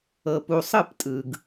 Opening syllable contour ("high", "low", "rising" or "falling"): low